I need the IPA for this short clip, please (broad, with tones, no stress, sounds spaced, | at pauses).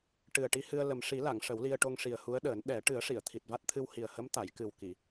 ʈ ɨ˨˩ ə̯ ʈ i˧ h ɨ˧ ə̯ l ə˨˩ m ʂ i˨˩˦ l a˨˩˨ ŋ ʂ ə˨˩˦ w l i˧ ə̯ ʈ o˧ ŋ ʂ i˨˩ ə̯ h u˧˥ ə̯ ɗ əː˨˩˦ n ɗ ɛ˨˩˦ ʈ ɨ˨˩˦ ə̯ ʂ i˨˩˨ ə̯ t̪ʰ i˨˩ t̚ v a˦˥ t̚ t̪ʰ ɨ˧ w h i˨˩ ə̯ h ə˧˥ m t̪ a˨˩˨ j k ɨ˨˩ w k i˨˩˨